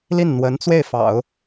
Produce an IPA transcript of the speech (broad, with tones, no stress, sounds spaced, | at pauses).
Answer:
l i˥˩ n n̪ w ə˧˥ n t͡s w e˥˩ ɪ̯ f ɑ̰˨˩˦ ʊ̯